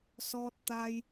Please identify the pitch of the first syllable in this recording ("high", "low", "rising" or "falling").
low